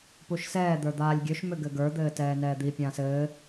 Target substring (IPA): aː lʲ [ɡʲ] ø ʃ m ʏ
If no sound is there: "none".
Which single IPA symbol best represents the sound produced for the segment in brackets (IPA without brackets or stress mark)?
ɡʲ